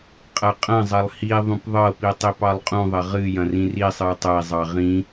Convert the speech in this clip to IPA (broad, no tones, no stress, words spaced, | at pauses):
qʼɐqʼɐ̃zˤɐlˠ hi ðˤũpðˤɤpi tˤipɑlˠqʼũðˤɐ ʁɨjɐ̃ rĩrisˤɨu̯ tˤɐi̯zˤɑ ʁĩ